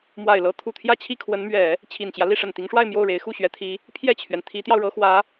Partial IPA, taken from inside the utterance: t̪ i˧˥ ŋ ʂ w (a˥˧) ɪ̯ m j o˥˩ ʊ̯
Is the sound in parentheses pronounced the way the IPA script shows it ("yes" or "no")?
yes